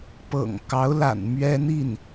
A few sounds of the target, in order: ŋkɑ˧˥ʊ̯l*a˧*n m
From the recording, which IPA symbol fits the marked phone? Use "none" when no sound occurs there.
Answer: a̰˨˩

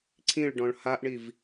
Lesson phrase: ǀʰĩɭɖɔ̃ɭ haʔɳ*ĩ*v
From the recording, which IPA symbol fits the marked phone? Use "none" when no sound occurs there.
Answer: i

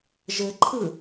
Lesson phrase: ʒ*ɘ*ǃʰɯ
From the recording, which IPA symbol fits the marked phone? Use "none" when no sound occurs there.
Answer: ɘ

